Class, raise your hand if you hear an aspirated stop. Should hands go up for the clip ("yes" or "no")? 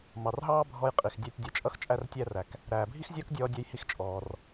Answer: no